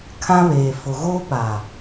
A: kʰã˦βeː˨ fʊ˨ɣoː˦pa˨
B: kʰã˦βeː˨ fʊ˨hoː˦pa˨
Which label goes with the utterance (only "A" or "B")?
A